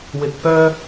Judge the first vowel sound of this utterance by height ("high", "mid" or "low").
high